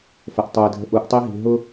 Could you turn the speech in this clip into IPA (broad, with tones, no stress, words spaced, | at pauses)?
fə˨ʔtˤu˨ɪ̯dʱə̤˦ ʔu˨˦ʔtˤi˦ɦi̤˨ ɦʊ˦